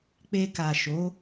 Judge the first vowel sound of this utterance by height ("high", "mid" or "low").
mid